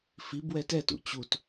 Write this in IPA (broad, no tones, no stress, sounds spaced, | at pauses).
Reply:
f i b w ɛ t ɛ t ṵ t͡ɕ u t